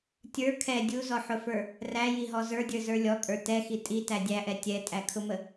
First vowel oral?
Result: yes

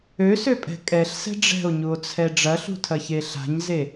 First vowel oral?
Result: yes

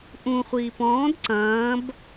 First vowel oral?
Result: no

